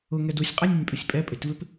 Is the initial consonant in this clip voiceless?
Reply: no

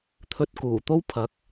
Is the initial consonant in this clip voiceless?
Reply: yes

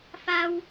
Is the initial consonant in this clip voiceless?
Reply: yes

